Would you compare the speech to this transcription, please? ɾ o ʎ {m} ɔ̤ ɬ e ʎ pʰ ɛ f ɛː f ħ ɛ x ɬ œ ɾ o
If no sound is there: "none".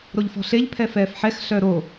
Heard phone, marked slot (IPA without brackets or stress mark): f